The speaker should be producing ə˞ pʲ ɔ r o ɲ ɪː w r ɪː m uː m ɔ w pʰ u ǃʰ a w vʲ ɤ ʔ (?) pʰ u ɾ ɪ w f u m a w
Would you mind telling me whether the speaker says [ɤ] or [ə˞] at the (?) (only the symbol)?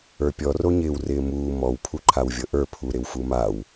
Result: ə˞